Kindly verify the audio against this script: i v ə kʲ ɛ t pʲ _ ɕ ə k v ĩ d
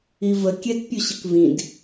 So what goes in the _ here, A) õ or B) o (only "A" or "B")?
B